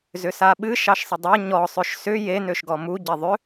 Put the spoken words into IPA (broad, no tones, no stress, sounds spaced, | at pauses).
z ʏ s a ɓ ɨ ʃ ɑ ʃ sˤ ə dˤ a ɲ ɔ sˤ ø ʃ s ʏ j e n ø ʃ ɡ ɔ m u ɟ e ðˤ ʏ